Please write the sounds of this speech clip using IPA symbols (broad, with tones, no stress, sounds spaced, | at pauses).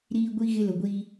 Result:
ɾ iː˦ ɡʷ i˦ ɣ ɪ˦ l ʊ˨ ɡʷ i˦